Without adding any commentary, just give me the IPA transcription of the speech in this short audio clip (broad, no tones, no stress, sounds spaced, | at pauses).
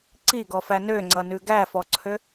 ǀ i ɡ ɔ f æ n ø ŋ͡ǀ ʌ n ʉ ɡ æ f ɔ ǀʰ ø